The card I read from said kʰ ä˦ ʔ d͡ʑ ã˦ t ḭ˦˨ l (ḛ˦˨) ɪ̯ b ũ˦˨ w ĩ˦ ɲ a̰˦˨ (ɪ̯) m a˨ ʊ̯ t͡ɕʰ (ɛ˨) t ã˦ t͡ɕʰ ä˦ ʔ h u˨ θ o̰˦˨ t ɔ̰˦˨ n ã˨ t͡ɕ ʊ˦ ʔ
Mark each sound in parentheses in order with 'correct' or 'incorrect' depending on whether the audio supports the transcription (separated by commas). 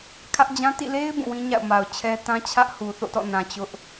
incorrect, incorrect, incorrect